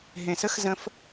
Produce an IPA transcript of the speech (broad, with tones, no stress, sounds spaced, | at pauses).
ɦ ẽ˨ s ə˦ x z ə̃˦ f